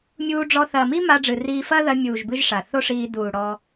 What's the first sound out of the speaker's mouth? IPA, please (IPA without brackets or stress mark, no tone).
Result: mʲ